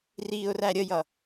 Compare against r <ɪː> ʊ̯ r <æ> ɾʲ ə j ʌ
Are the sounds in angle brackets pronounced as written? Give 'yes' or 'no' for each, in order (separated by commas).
no, yes